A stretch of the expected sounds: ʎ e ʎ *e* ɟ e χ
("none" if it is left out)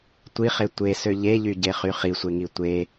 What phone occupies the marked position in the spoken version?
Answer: y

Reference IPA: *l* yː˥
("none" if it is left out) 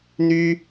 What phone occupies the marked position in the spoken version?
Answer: n̪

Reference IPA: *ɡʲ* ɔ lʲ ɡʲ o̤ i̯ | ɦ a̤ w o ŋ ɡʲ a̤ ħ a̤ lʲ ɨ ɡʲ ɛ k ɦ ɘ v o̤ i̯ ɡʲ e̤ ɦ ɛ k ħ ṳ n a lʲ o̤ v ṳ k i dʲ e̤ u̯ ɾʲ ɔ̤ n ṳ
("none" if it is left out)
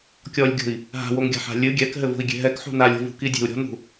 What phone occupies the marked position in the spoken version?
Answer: kʲ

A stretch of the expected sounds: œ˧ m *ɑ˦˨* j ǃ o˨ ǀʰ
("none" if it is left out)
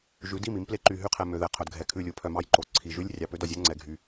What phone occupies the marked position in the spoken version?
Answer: ɑ˦˨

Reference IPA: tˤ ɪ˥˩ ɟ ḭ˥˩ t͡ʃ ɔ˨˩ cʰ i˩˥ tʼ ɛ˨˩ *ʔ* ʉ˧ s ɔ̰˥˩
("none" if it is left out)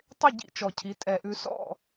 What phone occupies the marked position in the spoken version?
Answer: ʔ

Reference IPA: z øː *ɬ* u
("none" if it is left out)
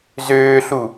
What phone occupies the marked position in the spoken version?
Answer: ɬ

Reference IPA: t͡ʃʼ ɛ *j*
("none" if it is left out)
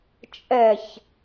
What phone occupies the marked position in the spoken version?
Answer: ç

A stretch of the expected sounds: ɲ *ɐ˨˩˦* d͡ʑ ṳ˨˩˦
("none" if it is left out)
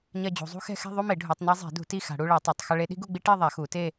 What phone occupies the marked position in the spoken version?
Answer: ɐ˥˧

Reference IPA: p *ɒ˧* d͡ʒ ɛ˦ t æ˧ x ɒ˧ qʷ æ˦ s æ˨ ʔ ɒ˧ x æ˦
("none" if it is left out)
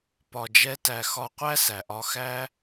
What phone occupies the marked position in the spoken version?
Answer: ɒ˧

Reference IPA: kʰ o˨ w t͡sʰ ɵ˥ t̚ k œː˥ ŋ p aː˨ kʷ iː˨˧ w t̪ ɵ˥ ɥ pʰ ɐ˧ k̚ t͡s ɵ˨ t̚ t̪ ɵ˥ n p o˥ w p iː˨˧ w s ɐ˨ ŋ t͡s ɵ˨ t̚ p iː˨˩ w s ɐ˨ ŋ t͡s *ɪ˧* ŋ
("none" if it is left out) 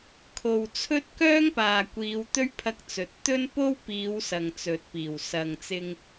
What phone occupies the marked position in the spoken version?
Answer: ɪ˧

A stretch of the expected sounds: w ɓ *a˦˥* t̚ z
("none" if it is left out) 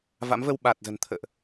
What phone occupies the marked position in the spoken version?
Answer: a˨˩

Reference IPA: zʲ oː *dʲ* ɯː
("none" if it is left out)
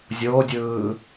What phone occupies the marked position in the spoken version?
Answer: dʲ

